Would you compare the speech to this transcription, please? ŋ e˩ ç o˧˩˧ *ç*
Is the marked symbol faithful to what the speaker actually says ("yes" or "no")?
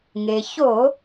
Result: no